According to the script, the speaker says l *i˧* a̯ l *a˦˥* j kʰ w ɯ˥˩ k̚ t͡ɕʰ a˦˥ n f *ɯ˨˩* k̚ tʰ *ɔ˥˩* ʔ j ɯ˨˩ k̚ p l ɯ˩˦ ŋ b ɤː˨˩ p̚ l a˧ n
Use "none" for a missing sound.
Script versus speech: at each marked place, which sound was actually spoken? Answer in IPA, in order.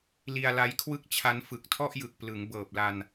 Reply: i˧, a˦˥, ɯ˨˩, ɔ˥˩

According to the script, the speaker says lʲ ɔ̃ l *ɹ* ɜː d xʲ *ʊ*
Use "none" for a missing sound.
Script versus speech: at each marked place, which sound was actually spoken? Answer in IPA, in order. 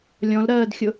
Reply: ɾ, ʊ

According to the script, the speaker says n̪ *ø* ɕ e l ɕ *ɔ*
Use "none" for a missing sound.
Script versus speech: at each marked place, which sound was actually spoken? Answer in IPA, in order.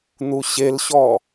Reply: u, ɔ

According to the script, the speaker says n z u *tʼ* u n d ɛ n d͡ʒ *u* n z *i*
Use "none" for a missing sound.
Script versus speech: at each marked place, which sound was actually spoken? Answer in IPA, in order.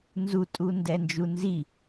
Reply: tʼ, u, i

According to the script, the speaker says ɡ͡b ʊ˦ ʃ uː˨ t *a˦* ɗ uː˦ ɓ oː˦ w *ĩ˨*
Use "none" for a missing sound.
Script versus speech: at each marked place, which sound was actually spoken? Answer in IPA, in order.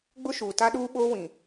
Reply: a˦, ĩ˨

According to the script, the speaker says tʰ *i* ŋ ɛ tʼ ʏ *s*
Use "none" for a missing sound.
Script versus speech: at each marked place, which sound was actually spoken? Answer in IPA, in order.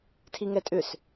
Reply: i, s

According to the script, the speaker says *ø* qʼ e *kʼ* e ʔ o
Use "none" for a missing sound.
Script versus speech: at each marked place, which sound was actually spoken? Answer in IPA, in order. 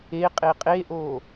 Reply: e, qʼ

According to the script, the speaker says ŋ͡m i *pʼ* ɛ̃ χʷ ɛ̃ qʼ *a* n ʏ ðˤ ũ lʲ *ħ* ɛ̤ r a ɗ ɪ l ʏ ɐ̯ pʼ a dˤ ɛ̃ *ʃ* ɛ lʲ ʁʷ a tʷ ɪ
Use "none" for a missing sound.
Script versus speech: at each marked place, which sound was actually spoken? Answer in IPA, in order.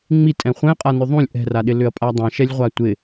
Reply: tʼ, a, ʔ, ʃ

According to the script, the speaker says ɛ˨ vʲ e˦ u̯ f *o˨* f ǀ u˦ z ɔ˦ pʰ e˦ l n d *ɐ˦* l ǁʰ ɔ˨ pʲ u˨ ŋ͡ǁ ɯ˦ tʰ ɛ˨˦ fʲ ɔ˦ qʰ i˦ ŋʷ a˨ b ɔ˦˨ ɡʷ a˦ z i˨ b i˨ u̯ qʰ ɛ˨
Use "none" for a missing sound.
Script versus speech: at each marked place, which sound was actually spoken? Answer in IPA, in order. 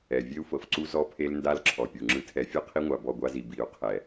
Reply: ɤ˨, a˦

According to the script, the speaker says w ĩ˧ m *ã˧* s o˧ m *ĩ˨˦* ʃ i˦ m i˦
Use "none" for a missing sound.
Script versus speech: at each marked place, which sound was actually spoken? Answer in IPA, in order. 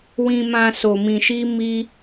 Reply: ã˧, ĩ˧

